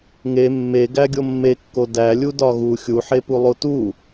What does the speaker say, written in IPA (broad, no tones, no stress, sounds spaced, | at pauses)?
ŋ e mː e ɡ æ ɡʲ o mː e kː o d æ lʲ u d ɒ ɣ u xʲ u ħ e p u lˠ o t u